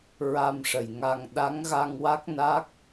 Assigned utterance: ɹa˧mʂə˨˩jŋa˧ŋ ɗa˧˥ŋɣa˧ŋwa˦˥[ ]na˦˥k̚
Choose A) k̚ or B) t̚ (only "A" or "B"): A